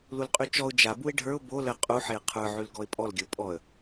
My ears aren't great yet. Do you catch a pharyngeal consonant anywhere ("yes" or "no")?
yes